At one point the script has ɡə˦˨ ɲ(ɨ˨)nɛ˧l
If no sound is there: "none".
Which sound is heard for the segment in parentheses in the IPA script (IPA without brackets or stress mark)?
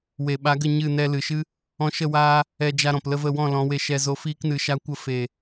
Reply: ɨ˦˨